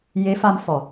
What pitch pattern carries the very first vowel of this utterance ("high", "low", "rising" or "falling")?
rising